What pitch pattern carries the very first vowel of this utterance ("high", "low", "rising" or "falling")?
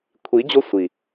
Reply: rising